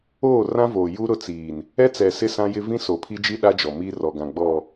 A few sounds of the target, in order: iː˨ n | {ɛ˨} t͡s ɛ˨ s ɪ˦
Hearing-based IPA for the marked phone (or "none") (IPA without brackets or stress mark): ɛ˦